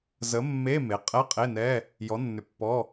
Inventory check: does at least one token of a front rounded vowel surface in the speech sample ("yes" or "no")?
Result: yes